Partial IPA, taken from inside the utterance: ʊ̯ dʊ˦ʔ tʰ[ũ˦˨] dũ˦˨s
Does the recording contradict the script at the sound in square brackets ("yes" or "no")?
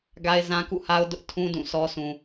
yes